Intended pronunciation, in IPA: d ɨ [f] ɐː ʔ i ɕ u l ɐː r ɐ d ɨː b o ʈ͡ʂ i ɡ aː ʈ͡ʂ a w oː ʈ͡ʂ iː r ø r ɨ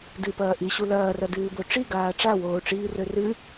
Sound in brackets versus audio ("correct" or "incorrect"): incorrect